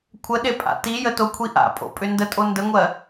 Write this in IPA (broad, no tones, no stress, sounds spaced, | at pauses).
kʷʰ ə ɗ e pʼ a̰ t i j ə t o kʷʰ i ʔ a̰ pʼ o̰ pʼ ʏ n d ə tʼ o n d ə ŋʷ ɜ